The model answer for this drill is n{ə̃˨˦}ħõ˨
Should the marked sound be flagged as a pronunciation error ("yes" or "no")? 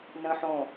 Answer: yes